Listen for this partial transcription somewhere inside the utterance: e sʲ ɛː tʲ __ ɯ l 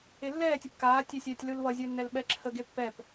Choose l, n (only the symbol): l